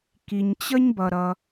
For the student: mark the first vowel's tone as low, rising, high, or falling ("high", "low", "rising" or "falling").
low